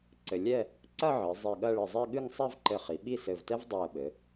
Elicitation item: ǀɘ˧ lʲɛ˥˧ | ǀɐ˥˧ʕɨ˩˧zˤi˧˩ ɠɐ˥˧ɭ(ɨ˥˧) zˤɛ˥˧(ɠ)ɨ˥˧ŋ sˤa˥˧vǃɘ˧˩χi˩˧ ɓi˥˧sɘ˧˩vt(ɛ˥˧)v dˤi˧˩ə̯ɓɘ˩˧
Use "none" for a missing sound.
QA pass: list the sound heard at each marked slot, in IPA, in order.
ɨ˧˩, ɠ, ɛ˥

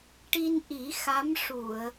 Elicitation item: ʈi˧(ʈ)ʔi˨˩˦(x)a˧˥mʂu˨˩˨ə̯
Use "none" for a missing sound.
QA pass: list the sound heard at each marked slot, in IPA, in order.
n, x

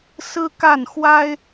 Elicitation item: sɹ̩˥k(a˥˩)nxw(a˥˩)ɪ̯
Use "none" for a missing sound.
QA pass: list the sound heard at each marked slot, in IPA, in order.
a˥˩, a˥

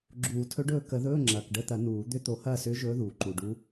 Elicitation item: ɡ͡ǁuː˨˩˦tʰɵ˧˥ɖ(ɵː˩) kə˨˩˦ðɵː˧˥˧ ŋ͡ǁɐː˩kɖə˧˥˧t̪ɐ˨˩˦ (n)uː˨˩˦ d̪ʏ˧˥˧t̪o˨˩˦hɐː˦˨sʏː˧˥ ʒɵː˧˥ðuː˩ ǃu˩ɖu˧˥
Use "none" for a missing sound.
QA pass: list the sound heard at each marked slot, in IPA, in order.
ɵː˦˨, n

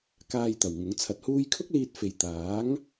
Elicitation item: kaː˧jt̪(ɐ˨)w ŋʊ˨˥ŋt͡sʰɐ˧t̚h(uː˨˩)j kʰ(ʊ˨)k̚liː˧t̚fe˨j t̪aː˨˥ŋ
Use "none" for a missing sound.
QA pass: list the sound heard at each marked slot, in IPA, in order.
ɐ˨˩, uː˥, ʊ˥

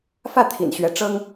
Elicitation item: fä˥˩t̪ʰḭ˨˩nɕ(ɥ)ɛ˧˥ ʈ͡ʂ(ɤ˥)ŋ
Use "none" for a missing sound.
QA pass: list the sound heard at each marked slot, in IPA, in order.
ɥ, ɤ˥

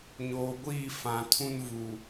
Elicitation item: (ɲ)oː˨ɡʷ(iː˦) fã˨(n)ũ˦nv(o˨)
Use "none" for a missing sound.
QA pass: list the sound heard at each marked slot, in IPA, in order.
ɲ, iː˦˨, tʰ, u˨

